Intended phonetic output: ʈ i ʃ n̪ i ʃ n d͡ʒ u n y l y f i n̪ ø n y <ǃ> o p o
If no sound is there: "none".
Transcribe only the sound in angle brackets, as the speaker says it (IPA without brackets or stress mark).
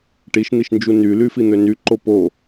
ǃ